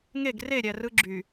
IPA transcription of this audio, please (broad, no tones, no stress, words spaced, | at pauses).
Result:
ŋeɡ reɾʲæ rɯɡ͡ǁy